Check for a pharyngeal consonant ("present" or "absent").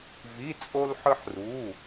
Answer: present